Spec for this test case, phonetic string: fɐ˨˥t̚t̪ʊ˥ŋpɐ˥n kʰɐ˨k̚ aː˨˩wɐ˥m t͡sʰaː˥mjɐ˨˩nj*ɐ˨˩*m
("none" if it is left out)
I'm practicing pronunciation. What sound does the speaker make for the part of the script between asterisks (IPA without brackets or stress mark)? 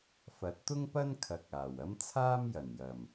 ɐ˨˩